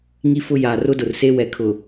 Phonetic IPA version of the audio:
ŋ i˦ f ʊ˦ j aː˨ r ʊ˦ d ʊ˨ r s e˦ w ɛ˨ kʰ ʊ˨

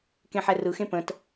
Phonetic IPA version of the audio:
k ẽ ħ ɛ r ɯ x ẽ p ə̃ t

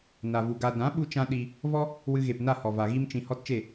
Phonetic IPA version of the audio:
n a˨ v u˨ ɡ a˨ d ã˨˦ ɓ u˦ t͡ʃ ã˦ ɗ i˧ | v ɔ˦ | w ɨ˧ ɣ e˨ p n a˦˨ h ɔ˨ v a˨ ɣ i˦ m t͡ʃ ĩ˧ h ɔ˦ t t͡ʃ e˦˨

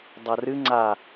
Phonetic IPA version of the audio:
dˤ ɐ r ɨ ŋ͡ǀ a

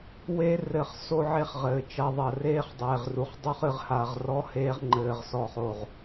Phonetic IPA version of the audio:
w e˧ r ɘ˨ χ s o˦ ʕ e˦ χ ʁ ɘː˨ t͡ʃ ɐ˧ ðˤ ɐ˨ r eː˦ χ dˤ eː˨ ʁ r u˨ χ dˤ u˦ χ ɨ˧ ʁ h a˨ ʁ r ɔ˦ h eː˦ ʁ ŋ͡ǃ ɘː˧ ʁ s ɔ˦ χ o˦˨ ʁ

